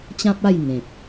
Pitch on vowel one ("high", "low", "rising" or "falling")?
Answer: high